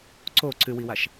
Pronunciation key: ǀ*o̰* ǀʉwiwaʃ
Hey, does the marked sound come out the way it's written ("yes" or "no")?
no